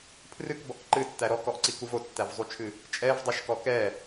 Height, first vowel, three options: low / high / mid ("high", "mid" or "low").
high